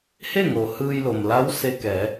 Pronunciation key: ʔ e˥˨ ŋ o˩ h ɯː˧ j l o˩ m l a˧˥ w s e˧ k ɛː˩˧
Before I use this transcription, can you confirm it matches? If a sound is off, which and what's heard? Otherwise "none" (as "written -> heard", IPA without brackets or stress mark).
ʔ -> h